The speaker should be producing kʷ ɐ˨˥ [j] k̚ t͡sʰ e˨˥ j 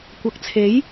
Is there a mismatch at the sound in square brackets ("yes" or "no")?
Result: yes